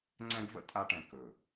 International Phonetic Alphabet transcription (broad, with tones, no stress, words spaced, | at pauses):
ŋ͡ǀɛ̃˥ɡvə̰˥ tʼa˥ʈɛ̃˧ kɵ˧˩